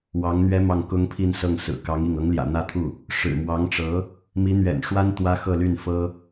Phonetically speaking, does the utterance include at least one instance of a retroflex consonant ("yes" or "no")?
yes